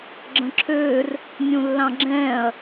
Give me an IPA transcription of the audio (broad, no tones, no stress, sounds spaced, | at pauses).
ɡ͡ǁ ə̃ ǁʰ øː r | nʲ ũ lː ɑ̃ ɡ͡ǁ ɛ̃ː ɐ̯